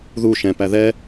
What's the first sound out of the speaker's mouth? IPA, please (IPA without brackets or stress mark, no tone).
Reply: ð